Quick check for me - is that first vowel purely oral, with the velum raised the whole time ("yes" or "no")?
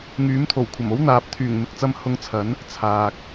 yes